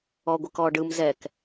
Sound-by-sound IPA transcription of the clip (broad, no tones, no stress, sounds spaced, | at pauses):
ɔ ɡʷ ɯ k ɔ ɖ ɯ m z ɛ k